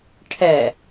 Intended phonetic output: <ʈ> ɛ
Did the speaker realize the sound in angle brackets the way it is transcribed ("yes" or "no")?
no